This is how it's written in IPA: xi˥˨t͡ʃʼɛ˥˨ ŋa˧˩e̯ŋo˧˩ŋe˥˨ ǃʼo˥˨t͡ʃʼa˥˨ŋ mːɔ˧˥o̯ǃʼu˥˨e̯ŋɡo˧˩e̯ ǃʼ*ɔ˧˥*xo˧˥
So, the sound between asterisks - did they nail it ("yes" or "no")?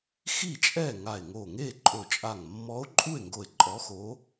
yes